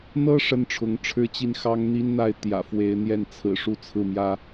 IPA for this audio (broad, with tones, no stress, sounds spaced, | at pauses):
n̪ ɤ˥ ʂ ə˥˩ n ʈ͡ʂʰ ʊ˧˥ ŋ ʈ͡ʂʰ ɻ̩˥ t͡ɕ i˥˩ n x ɑ˥ ŋ n̪ i˥ n n̪ a˥˩ ɪ̯ t̪ j ä̰˨˩ f w e˧˥ ɪ̯ n̪ j ɛ˥˩ n t͡sʰ ɹ̩˨˩ ʂ u˥ t͡sʰ ɹ̩˥˩ m j ä˥